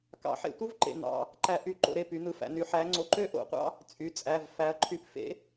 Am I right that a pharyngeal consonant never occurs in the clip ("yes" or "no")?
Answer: no